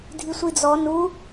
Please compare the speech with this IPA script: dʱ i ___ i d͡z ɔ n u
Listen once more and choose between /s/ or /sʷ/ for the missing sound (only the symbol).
sʷ